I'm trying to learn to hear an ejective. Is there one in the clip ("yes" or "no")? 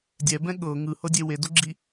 no